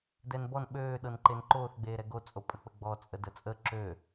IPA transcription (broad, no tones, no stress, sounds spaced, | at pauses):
d ɛ n b ɔ n ɓ øː ɗ ɤ n ǃ e n ǃ oː θ ɡ͡b eː ɾ ɛ ɡ o t͡sʼ o pʼ ə k͡p ə ɡ͡b ɔ t͡sʼ ə d ə t͡sʼ ə ǁ ø